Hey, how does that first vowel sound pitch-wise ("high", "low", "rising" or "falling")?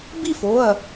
falling